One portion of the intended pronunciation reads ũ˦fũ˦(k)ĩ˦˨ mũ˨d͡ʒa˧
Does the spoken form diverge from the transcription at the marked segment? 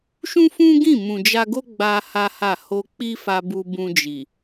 yes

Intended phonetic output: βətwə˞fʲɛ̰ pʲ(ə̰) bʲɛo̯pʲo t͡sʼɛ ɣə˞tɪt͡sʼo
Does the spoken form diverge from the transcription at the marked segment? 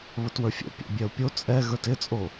no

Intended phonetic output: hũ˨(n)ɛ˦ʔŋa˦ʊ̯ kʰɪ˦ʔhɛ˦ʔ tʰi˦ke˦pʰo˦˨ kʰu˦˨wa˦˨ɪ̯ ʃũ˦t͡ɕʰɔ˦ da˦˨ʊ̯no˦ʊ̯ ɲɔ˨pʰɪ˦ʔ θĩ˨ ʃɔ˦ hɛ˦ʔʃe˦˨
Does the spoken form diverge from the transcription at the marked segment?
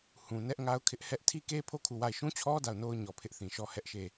no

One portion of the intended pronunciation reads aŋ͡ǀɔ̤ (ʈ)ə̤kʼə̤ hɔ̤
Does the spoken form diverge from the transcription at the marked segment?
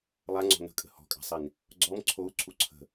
yes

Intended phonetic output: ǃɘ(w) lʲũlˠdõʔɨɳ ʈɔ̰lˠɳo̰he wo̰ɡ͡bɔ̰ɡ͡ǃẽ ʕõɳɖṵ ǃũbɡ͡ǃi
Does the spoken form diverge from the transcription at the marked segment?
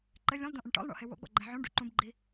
yes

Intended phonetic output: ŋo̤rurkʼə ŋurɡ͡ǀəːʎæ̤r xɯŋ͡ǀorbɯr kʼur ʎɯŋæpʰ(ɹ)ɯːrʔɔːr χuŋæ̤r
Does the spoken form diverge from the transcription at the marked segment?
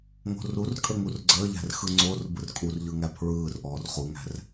no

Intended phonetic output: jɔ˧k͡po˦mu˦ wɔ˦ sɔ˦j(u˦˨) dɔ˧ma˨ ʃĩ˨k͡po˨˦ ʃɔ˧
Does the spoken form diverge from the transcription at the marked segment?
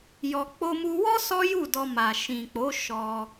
no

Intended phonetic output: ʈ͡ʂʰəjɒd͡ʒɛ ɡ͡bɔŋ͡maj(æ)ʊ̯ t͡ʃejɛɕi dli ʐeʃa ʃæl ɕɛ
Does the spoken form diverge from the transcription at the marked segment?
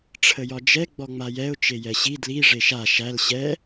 yes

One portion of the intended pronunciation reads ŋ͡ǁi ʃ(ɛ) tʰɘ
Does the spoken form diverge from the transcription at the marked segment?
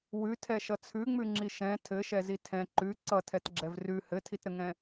yes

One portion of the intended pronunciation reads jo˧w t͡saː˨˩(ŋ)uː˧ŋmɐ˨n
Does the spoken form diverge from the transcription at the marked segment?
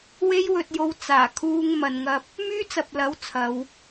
yes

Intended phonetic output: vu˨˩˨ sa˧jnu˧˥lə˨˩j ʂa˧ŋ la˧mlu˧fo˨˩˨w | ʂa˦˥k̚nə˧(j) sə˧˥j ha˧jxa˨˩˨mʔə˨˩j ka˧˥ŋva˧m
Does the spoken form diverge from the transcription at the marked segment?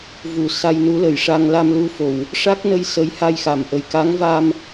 no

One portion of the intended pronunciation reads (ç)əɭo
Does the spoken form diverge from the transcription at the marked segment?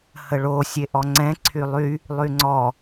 yes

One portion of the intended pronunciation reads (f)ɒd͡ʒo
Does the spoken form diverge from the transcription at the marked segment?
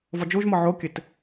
yes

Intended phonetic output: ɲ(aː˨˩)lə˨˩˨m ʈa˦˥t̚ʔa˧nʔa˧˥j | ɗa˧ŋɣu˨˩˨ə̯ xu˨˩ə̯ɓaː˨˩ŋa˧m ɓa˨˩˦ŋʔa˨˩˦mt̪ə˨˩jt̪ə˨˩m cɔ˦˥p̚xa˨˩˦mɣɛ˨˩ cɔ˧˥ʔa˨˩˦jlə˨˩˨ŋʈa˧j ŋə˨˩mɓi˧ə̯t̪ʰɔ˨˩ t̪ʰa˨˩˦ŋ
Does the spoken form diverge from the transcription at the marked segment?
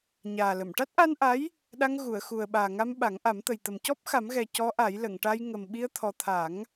no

